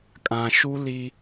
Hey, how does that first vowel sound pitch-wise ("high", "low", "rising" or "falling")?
low